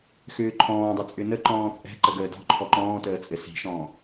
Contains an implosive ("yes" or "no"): no